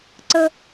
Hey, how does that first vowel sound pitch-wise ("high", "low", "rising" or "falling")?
high